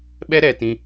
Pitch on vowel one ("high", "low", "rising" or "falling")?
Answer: high